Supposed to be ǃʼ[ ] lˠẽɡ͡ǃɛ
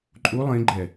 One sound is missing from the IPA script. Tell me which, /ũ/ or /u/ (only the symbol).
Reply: u